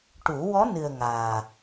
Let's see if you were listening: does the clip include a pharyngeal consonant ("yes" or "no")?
no